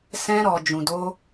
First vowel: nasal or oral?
nasal